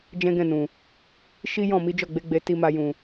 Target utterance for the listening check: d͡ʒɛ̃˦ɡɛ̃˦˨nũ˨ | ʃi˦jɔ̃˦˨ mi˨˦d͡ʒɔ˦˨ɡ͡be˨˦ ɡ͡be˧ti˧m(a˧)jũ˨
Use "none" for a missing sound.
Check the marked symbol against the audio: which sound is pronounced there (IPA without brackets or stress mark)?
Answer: a˧